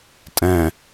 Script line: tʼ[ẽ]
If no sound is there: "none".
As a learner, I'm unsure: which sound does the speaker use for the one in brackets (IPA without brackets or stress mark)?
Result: ɛ̃